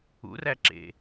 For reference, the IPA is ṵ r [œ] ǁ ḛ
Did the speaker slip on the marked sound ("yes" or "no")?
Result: yes